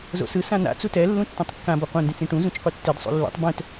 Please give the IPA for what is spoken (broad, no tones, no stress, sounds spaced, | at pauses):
z o̰ s ɯ s ã n a̰ t͡s u t ɛ lː ũ tː ĩ tˤ kː ã b ʌ qʷ ɛ̃ n d ĩ t͡s ĩ ʈ ũ z ũ t͡ʃ qʷ ʌ tː e d sˤ ṵ lː ṵ tˤ b ɛ̃ t